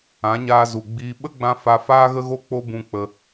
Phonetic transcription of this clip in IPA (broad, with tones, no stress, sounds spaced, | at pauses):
ã˨˦ ɲ aː˧ z u˨ ɡ͡b iː˧ ɓ ə˦ ɡ͡b ã˧ f a˧ f aː˦ ɣ ə˦ ɣ o˦ k͡p o˦ b ũ˧ k͡p ə˧